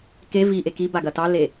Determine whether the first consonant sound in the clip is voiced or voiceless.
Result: voiceless